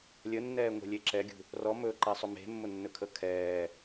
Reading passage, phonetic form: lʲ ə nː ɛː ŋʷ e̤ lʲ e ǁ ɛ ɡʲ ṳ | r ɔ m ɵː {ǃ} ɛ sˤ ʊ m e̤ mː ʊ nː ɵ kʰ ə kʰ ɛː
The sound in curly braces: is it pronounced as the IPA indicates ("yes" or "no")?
yes